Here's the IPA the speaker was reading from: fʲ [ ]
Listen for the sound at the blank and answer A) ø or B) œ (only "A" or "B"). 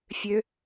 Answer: A